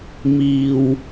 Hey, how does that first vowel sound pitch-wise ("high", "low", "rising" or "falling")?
low